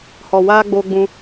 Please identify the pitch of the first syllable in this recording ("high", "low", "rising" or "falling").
low